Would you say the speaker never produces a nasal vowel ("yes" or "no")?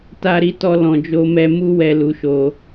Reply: no